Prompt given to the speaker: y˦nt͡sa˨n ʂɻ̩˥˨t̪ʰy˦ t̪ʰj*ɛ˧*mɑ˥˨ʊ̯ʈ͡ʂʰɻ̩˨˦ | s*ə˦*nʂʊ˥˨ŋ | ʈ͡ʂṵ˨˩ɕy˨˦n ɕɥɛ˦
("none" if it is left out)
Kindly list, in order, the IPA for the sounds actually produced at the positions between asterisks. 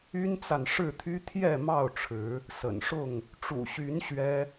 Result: ɛ˥˨, ə̰˨˩

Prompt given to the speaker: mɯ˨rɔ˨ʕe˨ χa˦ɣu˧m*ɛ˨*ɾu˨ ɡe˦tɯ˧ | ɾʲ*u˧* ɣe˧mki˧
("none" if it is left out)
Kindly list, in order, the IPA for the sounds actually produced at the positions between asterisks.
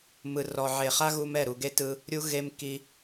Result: ɛ˦˨, u˧

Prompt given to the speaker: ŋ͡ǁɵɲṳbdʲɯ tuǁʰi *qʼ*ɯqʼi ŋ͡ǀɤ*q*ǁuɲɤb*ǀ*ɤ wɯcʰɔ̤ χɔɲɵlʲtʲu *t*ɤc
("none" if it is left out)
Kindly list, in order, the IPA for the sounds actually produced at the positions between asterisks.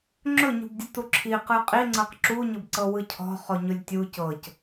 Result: q, q, ǀ, c

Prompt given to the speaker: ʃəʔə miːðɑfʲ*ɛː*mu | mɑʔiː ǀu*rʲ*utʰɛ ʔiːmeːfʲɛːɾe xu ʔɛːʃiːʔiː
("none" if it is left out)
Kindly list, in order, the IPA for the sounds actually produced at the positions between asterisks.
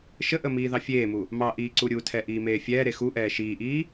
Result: eː, ɾʲ

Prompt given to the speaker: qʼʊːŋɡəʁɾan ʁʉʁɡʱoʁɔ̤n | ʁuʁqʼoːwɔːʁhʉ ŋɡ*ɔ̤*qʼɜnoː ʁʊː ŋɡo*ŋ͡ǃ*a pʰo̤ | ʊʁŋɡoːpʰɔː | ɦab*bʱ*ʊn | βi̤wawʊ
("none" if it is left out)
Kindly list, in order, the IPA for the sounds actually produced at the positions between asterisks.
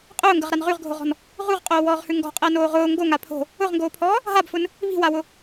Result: ɔ̤, ŋ, f

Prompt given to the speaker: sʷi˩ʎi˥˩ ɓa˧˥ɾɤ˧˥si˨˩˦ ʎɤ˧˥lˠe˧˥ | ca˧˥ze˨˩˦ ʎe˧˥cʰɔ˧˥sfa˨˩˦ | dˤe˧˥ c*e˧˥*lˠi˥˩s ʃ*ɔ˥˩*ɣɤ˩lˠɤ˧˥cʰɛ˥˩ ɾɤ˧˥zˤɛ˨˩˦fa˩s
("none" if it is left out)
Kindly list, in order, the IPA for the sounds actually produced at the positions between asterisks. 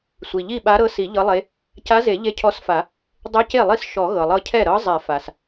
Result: e˥˩, ɔ˨˩˦

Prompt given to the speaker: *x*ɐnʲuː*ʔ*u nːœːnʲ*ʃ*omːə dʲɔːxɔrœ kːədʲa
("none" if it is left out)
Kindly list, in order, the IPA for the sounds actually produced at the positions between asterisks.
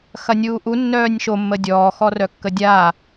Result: x, ʔ, ʃ

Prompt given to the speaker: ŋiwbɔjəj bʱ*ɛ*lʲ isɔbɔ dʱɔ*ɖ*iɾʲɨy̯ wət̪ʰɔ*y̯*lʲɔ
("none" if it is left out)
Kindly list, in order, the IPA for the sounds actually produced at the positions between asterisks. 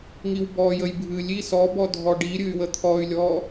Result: ɨ, ɖ, y̯

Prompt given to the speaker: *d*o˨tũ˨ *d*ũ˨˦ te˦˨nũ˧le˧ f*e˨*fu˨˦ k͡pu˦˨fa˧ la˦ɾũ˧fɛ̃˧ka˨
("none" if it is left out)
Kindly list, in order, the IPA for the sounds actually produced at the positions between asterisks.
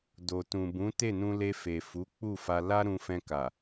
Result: d, b, e˨

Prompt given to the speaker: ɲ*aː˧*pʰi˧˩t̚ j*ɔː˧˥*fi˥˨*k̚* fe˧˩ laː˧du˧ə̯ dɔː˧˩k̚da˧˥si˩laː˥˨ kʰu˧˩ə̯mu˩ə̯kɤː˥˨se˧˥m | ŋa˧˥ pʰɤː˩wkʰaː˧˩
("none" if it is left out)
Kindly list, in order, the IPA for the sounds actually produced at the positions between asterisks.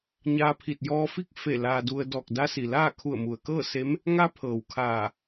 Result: aː˧, ɔː˧, k̚

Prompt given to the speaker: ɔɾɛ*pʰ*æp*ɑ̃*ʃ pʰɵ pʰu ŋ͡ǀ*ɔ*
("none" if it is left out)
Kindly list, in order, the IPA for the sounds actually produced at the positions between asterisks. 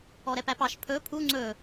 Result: p, ɑ, ɵ

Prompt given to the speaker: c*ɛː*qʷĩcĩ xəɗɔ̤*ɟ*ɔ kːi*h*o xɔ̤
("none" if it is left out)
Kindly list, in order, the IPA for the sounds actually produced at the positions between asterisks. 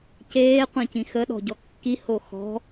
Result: eː, ɟ, h

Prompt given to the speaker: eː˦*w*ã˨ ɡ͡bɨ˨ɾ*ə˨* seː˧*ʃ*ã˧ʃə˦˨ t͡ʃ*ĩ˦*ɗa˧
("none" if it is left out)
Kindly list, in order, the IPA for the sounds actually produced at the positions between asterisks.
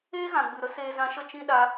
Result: ɣ, ə˦, z, ĩ˦

